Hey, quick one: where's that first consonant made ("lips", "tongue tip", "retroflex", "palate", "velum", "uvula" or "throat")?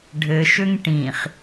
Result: retroflex